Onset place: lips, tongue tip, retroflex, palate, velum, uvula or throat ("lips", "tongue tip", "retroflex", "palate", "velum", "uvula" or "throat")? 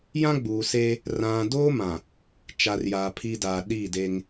palate